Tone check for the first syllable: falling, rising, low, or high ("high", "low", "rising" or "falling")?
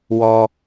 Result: low